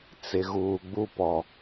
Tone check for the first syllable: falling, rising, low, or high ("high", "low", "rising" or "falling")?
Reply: low